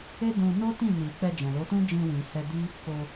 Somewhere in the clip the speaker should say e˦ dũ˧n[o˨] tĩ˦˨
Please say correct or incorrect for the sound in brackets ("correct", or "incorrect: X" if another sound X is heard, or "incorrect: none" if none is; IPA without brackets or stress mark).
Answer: incorrect: o˦